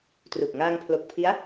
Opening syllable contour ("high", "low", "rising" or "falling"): low